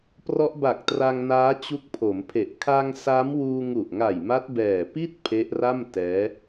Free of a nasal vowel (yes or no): yes